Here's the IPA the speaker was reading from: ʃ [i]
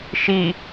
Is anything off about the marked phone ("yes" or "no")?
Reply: no